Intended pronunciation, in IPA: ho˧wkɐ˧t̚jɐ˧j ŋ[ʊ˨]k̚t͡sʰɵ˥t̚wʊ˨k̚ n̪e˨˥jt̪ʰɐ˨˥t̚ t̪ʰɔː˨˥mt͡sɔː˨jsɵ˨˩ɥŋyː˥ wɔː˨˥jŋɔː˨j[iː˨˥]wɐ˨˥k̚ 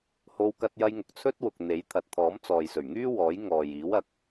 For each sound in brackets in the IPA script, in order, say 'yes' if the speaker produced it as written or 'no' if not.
yes, yes

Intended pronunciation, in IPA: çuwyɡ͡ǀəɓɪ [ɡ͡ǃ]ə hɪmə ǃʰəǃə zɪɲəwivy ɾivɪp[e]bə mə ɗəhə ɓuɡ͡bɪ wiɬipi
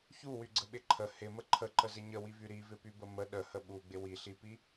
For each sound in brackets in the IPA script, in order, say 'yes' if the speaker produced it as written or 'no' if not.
no, no

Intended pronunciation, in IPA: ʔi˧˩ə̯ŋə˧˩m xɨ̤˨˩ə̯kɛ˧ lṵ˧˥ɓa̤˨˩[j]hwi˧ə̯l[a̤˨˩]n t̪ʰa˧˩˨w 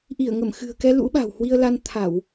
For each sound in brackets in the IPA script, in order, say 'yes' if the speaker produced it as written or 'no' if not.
no, no

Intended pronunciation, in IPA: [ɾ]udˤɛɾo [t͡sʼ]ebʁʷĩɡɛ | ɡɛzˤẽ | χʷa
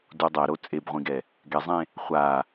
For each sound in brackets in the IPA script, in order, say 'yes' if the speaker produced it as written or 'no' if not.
no, yes

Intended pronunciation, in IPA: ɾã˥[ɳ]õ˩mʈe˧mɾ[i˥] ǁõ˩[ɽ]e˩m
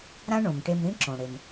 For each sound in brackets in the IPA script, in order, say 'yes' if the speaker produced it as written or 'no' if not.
yes, no, yes

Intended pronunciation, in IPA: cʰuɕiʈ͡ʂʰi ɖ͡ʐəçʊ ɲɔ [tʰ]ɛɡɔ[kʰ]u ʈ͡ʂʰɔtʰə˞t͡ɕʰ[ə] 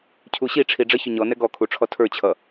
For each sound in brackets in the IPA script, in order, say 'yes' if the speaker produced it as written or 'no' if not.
no, yes, no

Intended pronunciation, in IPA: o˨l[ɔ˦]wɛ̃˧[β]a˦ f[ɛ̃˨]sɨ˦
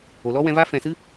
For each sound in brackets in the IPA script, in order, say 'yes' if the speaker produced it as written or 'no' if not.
yes, no, yes

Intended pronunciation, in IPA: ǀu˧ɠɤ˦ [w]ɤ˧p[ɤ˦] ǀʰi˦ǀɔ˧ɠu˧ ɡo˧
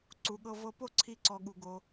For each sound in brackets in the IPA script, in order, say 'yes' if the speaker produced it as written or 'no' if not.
no, no

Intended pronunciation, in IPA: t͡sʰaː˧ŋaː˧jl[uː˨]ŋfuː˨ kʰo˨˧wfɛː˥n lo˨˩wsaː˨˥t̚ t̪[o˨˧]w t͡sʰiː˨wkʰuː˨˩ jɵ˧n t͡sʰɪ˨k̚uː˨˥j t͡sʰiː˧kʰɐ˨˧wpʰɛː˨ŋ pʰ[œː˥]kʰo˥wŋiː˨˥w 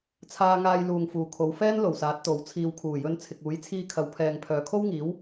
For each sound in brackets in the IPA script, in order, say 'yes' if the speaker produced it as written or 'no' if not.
yes, no, no

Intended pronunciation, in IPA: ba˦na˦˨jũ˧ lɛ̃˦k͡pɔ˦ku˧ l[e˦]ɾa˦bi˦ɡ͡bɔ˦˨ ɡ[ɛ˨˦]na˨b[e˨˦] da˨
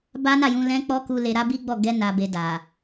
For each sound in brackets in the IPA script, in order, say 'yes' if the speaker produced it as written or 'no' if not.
no, no, no

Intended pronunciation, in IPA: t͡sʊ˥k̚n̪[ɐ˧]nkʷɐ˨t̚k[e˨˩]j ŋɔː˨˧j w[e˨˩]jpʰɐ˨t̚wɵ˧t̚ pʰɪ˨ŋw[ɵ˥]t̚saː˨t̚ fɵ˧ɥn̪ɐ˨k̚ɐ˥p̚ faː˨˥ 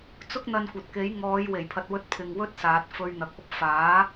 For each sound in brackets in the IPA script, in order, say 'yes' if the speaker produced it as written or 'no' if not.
yes, no, yes, yes

